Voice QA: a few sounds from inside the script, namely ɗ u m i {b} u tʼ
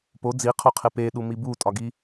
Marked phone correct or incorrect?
correct